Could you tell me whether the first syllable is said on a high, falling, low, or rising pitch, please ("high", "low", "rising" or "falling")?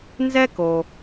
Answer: high